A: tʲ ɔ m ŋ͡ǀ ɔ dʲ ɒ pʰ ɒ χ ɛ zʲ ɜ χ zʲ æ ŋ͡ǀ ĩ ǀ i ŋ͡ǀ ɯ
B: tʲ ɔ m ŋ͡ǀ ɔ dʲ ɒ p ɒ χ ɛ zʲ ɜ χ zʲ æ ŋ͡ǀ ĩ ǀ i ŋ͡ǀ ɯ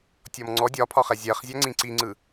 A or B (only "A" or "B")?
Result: A